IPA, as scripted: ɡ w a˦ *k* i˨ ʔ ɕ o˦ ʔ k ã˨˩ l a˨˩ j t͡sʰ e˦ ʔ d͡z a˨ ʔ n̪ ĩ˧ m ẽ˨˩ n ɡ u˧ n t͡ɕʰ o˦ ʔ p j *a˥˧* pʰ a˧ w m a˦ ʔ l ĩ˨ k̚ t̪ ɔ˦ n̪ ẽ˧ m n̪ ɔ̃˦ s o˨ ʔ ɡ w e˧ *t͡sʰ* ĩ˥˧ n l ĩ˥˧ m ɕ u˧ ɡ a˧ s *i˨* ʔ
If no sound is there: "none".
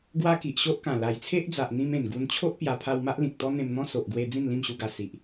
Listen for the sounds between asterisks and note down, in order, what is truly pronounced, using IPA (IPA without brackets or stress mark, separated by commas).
k, a˧, d͡z, i˨